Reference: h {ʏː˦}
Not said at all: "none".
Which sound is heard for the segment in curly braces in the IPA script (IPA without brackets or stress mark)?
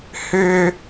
ʏː˦